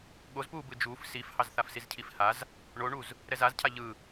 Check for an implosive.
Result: present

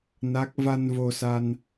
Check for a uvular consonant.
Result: absent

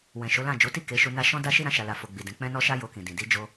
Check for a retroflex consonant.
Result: absent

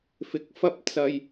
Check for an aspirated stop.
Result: absent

